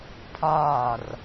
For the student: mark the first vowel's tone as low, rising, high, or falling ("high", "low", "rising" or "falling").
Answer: falling